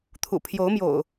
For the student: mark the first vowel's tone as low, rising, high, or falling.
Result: low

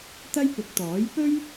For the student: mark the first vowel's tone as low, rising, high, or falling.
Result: high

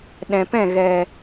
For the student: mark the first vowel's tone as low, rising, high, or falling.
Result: low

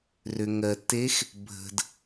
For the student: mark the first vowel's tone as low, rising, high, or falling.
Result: low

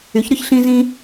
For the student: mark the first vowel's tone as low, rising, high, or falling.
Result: rising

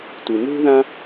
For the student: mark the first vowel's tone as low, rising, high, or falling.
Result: low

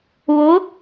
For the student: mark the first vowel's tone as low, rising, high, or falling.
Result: rising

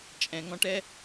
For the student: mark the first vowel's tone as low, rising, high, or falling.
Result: low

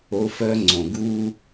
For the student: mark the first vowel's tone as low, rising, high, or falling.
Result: high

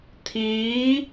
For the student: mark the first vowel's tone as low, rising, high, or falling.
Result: rising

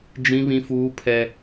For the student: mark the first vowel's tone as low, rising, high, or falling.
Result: high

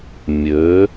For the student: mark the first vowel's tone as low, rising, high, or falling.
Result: rising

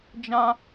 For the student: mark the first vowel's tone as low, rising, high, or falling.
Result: high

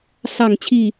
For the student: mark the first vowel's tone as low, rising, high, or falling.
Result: falling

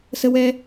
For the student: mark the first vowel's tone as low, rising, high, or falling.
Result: high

